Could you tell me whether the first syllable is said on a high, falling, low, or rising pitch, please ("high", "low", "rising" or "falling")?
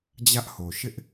high